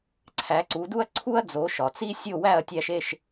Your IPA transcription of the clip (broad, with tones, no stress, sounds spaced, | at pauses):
ǀʰ æ˩˥ ǀ u˩˥ d u˥ ɐ̯ ǀʰ u˥ ɐ̯ d͡z o˩˥ ʃ ɒ˩ t͡s i˥ sʲ o˥˩ w æ˥˩ ɐ̯ tʲ æ˧ ʃ e˥˩ ʃ